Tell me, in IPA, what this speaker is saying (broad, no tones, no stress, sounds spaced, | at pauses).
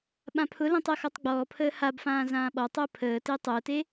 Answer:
ɓ ã pʰ ʊ l ẽ tˤ əː x ɔ tˤ ɡ͡b ɔː pʰ əː h a b f ãː z ãː ɓ ɔ tˤ əː pʰ əː t e tˤ əː t e